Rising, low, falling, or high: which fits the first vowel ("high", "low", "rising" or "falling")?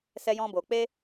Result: high